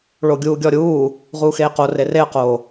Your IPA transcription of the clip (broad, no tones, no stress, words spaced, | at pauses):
ɭoɡʲuːɡʲɔɾʲuː | ʁuːxeːqo rereə̯qoː